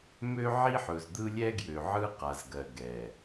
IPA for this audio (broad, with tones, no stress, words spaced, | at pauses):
mø˦ʕi˦ħɵ˨z d̪ɯ˦lʲɛ˦ɡjø˨ʕɯ˦ qa˨zɡɜ˨ ɡɛ˨